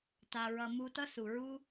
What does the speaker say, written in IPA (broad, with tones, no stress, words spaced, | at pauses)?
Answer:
ta˨ɹʌ˨ mu˧tʌ˦ su˨ɹu˦